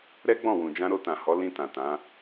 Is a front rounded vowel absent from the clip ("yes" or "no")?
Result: yes